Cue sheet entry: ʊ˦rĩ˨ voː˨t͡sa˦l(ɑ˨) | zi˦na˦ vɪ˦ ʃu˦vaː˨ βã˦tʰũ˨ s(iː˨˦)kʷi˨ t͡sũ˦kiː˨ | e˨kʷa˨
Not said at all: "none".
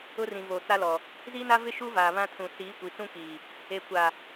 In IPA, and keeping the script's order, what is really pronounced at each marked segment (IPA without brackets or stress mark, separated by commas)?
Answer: ɔ˨, iː˨˦